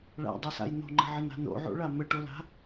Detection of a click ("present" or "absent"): present